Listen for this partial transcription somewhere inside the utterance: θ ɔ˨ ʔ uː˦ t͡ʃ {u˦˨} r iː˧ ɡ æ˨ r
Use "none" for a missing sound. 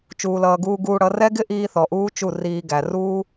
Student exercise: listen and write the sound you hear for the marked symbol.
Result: u˦˨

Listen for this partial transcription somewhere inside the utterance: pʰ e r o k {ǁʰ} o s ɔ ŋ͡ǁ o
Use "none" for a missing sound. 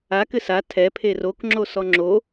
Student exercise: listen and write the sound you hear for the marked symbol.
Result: ŋ͡ǁ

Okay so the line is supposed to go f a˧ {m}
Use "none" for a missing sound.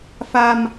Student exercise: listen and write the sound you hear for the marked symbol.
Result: m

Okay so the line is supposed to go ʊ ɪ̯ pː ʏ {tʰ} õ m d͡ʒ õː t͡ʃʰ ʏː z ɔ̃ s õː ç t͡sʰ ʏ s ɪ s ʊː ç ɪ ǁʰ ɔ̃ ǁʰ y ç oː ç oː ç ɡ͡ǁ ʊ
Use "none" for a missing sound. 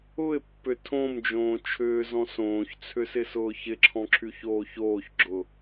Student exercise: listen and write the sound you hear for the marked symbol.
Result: tʰ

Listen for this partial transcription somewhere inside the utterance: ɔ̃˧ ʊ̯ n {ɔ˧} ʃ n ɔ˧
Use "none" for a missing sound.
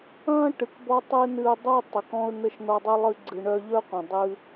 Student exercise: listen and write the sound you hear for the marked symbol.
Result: ə˧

